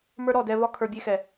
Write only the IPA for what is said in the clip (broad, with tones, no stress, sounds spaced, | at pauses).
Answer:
m ə˞˦ ɾ ɔ˦˨ d ɛ˧ v ɒ˦ kʰ ə˞˧ bʲ e˦ x ɛ˨